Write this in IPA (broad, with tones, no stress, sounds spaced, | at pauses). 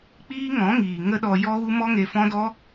k͡p iː˦ ŋ ɔ̃˨˦ ŋ iː˨ ŋ ə˦ ɗ ɔ˧ j ɔ˦ ɣ u˦ m ɔ˦ ŋ e˧ f ɔ̃˦ d ɔ˦